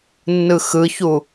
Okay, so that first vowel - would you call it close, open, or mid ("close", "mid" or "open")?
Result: close